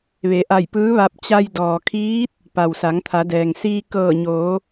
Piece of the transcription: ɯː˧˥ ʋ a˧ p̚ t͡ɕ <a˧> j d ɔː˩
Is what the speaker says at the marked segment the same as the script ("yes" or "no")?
yes